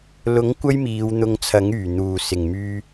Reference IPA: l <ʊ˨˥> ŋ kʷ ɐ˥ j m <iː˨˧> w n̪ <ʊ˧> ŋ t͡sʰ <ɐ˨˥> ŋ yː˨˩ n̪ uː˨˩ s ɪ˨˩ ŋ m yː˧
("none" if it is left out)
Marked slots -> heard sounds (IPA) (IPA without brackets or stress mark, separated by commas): ʊ˨˥, iː˨˧, ʊ˧, ɐ˨˥